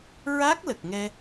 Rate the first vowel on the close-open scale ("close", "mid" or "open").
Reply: open